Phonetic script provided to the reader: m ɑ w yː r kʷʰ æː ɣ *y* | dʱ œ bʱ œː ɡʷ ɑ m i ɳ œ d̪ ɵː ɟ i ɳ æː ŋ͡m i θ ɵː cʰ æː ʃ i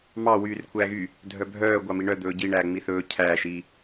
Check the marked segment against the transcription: correct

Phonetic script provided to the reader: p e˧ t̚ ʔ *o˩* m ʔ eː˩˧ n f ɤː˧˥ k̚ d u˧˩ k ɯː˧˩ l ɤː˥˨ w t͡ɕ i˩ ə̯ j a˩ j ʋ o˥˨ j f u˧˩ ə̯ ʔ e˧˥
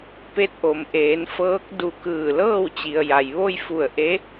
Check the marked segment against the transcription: correct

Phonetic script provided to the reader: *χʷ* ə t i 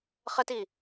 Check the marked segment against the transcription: incorrect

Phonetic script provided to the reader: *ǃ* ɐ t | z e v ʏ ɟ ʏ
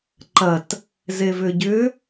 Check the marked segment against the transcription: correct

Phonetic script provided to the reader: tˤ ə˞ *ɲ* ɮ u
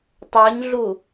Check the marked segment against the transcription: correct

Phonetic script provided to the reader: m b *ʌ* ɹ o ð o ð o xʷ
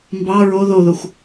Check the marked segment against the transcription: incorrect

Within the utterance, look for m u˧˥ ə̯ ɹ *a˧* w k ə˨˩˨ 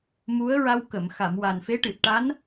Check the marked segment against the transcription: correct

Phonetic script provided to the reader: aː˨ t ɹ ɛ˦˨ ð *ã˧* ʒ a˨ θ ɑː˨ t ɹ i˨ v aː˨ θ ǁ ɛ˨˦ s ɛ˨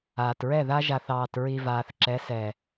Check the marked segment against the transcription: incorrect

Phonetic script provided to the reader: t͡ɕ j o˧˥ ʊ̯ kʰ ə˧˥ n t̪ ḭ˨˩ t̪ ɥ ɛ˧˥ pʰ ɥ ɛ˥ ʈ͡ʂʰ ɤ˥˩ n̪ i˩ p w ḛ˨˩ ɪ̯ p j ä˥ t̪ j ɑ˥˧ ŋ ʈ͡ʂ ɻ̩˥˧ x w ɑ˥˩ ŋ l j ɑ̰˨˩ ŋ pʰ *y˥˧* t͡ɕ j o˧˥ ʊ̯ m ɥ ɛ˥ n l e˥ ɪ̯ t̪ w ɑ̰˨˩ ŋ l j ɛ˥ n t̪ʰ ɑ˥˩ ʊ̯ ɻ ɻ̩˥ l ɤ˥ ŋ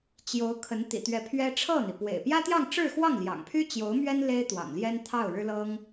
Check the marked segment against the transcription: incorrect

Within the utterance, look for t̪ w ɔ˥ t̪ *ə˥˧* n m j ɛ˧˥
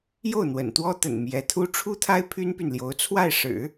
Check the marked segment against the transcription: incorrect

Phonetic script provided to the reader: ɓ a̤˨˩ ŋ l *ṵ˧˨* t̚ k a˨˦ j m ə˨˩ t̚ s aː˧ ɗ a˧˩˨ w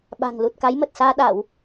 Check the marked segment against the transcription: incorrect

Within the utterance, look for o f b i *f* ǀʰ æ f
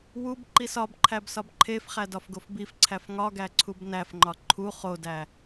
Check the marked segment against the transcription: correct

